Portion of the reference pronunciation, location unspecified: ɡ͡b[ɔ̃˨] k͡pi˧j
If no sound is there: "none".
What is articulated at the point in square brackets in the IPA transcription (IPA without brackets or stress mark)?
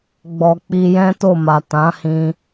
ɔ˨